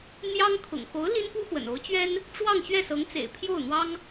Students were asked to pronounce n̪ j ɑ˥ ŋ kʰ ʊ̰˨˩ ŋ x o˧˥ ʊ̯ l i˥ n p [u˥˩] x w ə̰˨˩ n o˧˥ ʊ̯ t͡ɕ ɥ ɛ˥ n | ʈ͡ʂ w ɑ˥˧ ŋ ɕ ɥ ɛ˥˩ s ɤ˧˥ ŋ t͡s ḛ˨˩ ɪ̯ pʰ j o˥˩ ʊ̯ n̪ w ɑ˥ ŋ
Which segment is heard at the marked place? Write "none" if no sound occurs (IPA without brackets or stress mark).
u˥